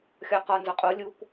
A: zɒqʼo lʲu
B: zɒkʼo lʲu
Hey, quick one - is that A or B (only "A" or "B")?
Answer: A